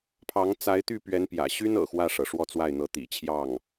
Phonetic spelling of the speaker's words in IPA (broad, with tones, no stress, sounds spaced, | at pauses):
pʰ ɑ˧˥ ŋ t͡s a˧˥ ɪ̯ t̪ y˥˩ p ɥ ɛ˧˥ n p j ä̰˨˩ ɕ y˥ n ɤ̰˨˩ x w ä˥˩ ʂ ɤ˩ ʂ w ɔ˥˧ t͡s w a˥˩ ɪ̯ n̪ ɤ˧˥ t̪ ḭ˨˩ t͡ɕʰ j ɑ˥˩ ŋ